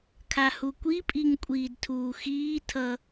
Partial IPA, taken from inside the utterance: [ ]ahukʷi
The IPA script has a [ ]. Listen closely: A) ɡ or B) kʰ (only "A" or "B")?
B